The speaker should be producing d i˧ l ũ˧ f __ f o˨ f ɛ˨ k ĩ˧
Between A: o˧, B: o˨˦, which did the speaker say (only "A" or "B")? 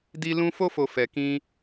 A